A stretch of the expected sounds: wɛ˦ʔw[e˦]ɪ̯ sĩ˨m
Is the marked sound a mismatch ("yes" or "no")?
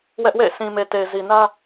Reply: yes